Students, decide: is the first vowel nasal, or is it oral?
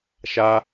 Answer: oral